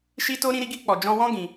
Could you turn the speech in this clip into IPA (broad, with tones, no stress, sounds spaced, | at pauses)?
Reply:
ʃ i˦ t o˦ ɾ ĩ˧ ɾ i˧ ɡ i˧ k͡p ɔ˨ d͡ʒ ɔ̃˧ w ɔ̃˦ ɡ ĩ˧